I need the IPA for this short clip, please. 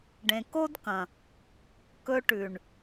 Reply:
ɖ ẽ˨ k o˦ d k ɐ̃˨ | k ɵ˧ ʈ ʉ˨ ɳ

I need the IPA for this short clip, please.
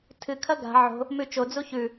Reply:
tʰ ɨ kʰ ɐ ɡ a̤ ʕ o̤ | m ʉ t͡ʃ o d͡z u ç ʉ

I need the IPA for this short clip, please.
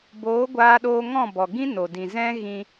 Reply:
b oː˨˦ ɡʷ aː˦ ɗ oː˦ ŋ ɔ̃˦˨ b ɔ˨ ɡ ĩ˦ n o˨ d ĩ˨ z ɛ̃˦ ɣ ĩ˧

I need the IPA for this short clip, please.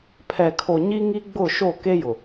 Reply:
pʰ ɛ˨ kʰ o˨ ɲ i˦ ŋ i˦ ɡ͡b ʊ˦˨ ʃ o˦˨ k e˦ j ʊ˨

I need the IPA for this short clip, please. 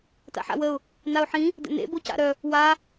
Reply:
t a̰ ħ a̰ w ə ʊ̯ | n a ʊ̯ ħ ĩ | d ə̰ n ḛ b o c a̰ ɾ œ | w a

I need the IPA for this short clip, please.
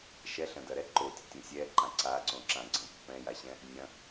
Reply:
ʃ ɛ ɬ ɐ̃ d ɐ ɾ ɛ ǃ o tʲ o tʲ õ sʲ ɛ ǃ ã ǀ a ǀ õ ǁ ã ɡ͡ǀ ɐ̃ pː ɛ̃ j a ɕ ɛ̃ | nʲ ɐ̃

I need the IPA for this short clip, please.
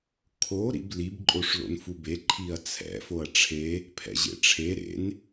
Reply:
kʰ o ɾ ḭ b l i b ǃʼ o ʂ l o̰ n f u b e ǃʰ i ɐ̯ t͡sʰ ɛ̰ f o ɐ̯ ʈ͡ʂʰ e | pʰ ɛ̰ ʑ ḛ ʈ͡ʂʰ e ɾ ḛ n

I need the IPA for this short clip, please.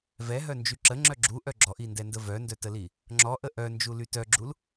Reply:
v ɛ ɦ œ n d͡ʒ y ǁ ə ŋ͡ǁ œ ɡ͡ǁ u ʔ œ ɡ͡ǁ ɔ ʔ i n d ɛ n d ə v œ n d œ t ə l i | ŋ͡ǁ ɔ ʔ ə ʔ œ n d͡ʒ u l y t œ ɡ͡ǁ u l

